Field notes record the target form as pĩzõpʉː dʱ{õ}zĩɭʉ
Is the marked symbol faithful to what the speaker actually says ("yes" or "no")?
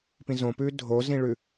no